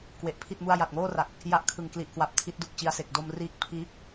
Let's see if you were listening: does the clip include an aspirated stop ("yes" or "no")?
yes